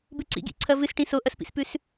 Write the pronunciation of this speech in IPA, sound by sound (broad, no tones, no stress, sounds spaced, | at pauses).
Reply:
b ʉ ǀ ḭ ɡ ḭ ǀʰ ɐ v ɨ s ʈ ĩ s o ʔ ɐ s p ḭ s p ʉ s